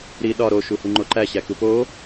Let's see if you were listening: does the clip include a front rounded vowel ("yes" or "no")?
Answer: no